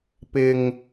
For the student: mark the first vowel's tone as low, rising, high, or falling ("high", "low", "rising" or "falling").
low